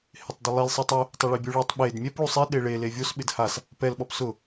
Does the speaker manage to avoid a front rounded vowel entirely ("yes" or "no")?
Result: yes